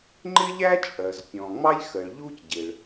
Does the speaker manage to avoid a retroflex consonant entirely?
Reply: no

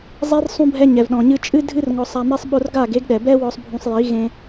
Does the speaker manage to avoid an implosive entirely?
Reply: no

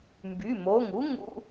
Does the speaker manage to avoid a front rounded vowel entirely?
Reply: no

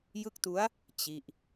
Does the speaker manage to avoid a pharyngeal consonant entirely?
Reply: yes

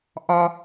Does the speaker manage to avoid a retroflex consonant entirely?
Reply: yes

